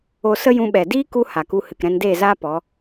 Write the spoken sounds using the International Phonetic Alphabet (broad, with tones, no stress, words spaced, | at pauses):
o˦ sə˦jũ˧ɓɛ˨ diː˦ku˧ ha˨ku˧ hɨ˨kɾɛ̃˧ndeː˦˨zaː˦ pɔ˨˦